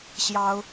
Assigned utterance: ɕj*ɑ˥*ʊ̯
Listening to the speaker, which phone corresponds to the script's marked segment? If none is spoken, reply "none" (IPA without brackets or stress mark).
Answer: ɑ˥